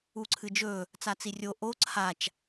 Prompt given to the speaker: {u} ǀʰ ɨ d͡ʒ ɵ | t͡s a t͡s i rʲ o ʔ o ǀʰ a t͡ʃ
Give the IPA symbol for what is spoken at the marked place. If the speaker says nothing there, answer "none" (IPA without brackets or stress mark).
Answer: u